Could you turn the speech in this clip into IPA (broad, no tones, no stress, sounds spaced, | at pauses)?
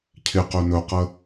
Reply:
cʰ ɪ q ø n ɵ q ə